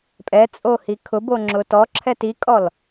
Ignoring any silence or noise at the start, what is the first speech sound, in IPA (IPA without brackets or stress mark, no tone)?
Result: pʼ